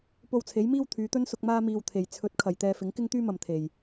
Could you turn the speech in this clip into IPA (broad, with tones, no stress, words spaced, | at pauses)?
po˧wt͡sʰe˨˥jmiː˥w t̪ʰyː˨˧t̪ɵ˥nsʊ˧k̚ maː˥miː˧wt̪ʰe˨j t͡sʰɵ˨˥t̚ kʰɐ˨jt̪ɛː˧ fɪ˨˥ŋ kɪ˥ŋt̪yː˥mɐ˨m t̪ʰe˨j